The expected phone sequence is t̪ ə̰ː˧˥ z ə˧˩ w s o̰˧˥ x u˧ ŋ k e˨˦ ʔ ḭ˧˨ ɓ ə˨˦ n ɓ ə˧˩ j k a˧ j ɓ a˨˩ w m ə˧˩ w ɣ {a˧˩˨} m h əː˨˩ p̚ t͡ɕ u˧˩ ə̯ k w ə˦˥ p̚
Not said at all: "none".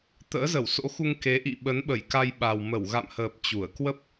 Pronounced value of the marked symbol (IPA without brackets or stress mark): a̰˧˨